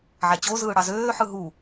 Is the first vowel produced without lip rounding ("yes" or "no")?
yes